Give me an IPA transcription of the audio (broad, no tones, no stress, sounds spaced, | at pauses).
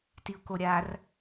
t i ʊ̯ k o ɾʲ a r